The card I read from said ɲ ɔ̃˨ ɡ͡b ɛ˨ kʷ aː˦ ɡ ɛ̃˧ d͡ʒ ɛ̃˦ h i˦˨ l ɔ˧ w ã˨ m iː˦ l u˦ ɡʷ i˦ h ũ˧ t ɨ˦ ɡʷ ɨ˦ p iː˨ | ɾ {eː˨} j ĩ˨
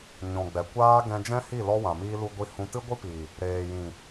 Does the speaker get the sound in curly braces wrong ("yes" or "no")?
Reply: no